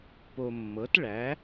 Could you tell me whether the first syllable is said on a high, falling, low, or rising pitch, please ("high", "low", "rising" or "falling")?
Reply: low